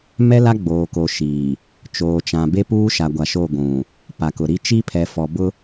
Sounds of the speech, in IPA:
m ɛ˦ l a˦ ɡ͡b oː˨ k o˨ ʃ iː˨ | t͡ʃ oː˨ t͡ʃ ã˨ b e˦ p uː˦ ʃ a˨ ɡʷ a˨ ʃ o˦˨ ɡʷ ũ˨ | p a˨ k ʊ˨ ɾ i˦ t͡ʃ i˦ pʰ ɛ˨ f ɔ˨ b ʊ˦

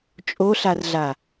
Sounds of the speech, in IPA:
t͡ʃʼ o ɬ a r ɮ a

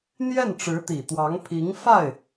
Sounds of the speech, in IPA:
n̪ j ɛ˥˩ n ʈ͡ʂ ɻ̩˧˥ t̪ i˨˩ t̪ w ɑ˧˥ ŋ pʰ i˧˥ ŋ f a˥˩ ɪ̯

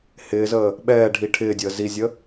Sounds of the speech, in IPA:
h ɪː z əː | ɓ ɛː ɖʱ i ʈʰ ɪː dʲ əː z i zʲ ə

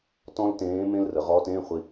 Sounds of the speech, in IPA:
t ɔ̃˥ l t ẽː˧˥ m ẽ˥ l r ə˩˧ ʁ ɔː˧˥ t ẽː˧˥˧ χʷ i˧

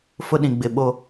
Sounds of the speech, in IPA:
f ʊ˦ ɗ ĩ˨ ɡ͡b ɪ˨ ɓ o˦

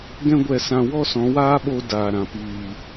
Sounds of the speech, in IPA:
ɡ ɛ̃˦ ɡʷ ɛ˧ s ã˧ w ɔ˦ s ɔ̃˨˦ w aː˦ ɓ o˧ d aː˨ ɾ ã˨ p iː˨

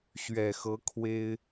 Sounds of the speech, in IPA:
ɕ ɥ ɛ˨˩ x ɤ˧˥ kʰ w e˥ ɪ̯

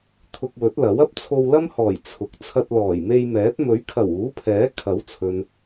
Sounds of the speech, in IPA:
t̪ʰ ʊ˧ k̚ w ɵ˨˥ t̚ l ɐ˨˥ w ɐ˥ p̚ t͡sʰ o˧ w l ɐ˥ m h ɔː˨˩ j t͡sʰ ʊ˨˥ k̚ t͡sʰ ɐ˧ t̚ l ɔː˨˩ j m e˧ j m ɛː˨˥ t̚ m ɵ˨˥ ɥ kʰ ɐ˨˩ w uː˨˥ pʰ ɛː˨˥ kʰ ɐ˨˥ w t͡sʰ ɵ˨ n

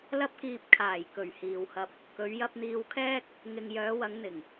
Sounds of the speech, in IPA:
l ɐ˧ p̚ k iː˨ p̚ kʰ aː˨˩ j k ɵ˨˩ ɥ h iː˨ w h ɐ˧ p̚ | k ɵ˨˧ ɥ j ɐ˧ p̚ n̪ iː˧ w kʰ ɛː˥ k̚ | ŋ ɪ˨ ŋ j œː˨˧ w ɐ˨˧ ŋ n̪ ɪ˨˩ ŋ

